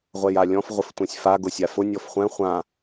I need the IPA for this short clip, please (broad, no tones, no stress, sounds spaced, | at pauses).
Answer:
ʁʷ ɛ j a lʲ ɔ̃ f ʁʷ ɪ f tʷ ɛ̃ sʲ f a ɡ ʊ sʲ a f ʊ nʲ ɔ f χʷ ɛ̃ χʷ ã